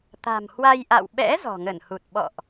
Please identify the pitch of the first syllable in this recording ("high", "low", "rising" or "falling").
low